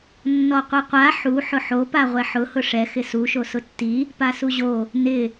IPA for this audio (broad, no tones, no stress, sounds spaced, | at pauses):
nː ɔ qʷ i qʷ a ħ u ħ ʊ ħ o p a ʁʷ ɛ ħ ʊ h ʊ ʂ ɛ x ɪ s u ʃ o s ʊ tː i | p a s u ʑ o | n ɪ